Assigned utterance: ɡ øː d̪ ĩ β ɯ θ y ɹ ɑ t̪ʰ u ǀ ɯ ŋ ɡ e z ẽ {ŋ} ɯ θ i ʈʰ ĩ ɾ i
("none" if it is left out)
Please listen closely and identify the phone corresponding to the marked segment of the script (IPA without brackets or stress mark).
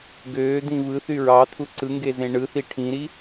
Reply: ɳ